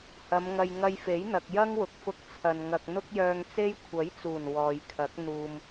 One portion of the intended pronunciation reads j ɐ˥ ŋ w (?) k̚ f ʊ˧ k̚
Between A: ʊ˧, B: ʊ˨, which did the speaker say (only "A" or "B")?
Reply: B